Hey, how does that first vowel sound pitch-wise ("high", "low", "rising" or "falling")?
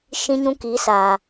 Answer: high